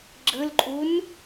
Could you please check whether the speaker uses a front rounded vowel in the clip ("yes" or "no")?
no